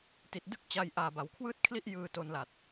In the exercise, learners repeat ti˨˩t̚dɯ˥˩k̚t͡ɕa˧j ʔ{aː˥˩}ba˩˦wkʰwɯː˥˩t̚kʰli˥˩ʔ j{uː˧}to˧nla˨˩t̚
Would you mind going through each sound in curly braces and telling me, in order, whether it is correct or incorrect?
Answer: incorrect: aː˨˩, incorrect: ɯː˧

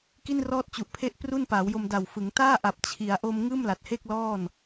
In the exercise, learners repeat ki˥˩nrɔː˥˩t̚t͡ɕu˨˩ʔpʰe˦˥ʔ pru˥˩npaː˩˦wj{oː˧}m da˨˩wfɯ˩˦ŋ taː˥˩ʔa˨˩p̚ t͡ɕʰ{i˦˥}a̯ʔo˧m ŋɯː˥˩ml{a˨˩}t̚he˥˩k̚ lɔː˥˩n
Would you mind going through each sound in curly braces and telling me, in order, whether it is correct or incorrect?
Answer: incorrect: o˧, incorrect: i˩˦, correct

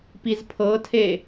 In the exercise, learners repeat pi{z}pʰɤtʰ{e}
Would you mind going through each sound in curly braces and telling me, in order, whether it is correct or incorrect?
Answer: correct, correct

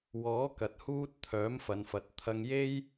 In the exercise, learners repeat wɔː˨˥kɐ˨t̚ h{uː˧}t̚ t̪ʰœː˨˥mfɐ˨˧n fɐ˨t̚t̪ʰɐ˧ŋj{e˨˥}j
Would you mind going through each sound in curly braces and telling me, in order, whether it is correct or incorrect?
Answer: correct, incorrect: e˥

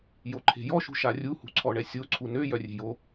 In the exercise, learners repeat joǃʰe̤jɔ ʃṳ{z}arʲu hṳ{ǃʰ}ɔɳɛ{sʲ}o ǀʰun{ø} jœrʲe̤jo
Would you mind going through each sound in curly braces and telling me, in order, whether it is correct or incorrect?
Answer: incorrect: ʃ, incorrect: ǀʰ, correct, correct

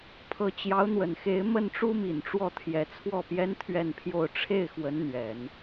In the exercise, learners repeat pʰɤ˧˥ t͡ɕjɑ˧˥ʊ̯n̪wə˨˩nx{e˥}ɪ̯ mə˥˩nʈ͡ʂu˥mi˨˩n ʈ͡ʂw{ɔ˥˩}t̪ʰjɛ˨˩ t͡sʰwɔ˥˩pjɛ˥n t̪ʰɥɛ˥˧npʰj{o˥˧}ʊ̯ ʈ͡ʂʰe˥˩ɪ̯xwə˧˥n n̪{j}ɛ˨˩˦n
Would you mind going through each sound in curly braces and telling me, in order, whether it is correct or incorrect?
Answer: incorrect: e˧˥, correct, correct, incorrect: ɥ

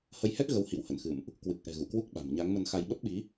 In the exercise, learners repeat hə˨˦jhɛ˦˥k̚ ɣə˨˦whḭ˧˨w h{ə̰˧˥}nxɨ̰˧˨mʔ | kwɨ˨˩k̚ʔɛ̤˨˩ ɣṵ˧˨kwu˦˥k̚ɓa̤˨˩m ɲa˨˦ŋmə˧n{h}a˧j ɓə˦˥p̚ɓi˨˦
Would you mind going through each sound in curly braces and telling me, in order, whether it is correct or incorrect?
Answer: incorrect: ə̰˧˨, incorrect: x

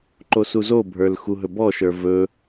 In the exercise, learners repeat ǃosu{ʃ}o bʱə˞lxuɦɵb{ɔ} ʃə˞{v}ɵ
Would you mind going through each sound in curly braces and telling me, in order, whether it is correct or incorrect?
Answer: incorrect: z, correct, correct

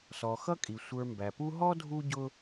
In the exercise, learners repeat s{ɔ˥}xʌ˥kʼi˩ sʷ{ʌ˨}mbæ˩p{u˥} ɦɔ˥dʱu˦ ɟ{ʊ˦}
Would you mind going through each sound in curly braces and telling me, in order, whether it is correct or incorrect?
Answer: incorrect: ɔ˩, incorrect: ə˞˨, incorrect: u˦, correct

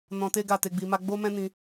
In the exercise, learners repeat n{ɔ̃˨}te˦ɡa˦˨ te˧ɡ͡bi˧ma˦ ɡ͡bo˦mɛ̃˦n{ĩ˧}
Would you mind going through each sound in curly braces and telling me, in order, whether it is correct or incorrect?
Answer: incorrect: ɔ̃˧, correct

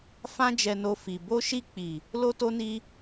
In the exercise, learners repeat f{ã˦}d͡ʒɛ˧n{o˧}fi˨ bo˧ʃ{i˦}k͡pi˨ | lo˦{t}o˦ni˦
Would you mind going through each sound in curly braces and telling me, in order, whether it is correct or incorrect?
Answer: correct, correct, incorrect: i˧, correct

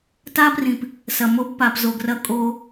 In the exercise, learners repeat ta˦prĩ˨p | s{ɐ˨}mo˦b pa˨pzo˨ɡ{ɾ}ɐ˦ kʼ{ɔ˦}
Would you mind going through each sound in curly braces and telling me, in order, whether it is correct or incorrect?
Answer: correct, incorrect: r, incorrect: o˦

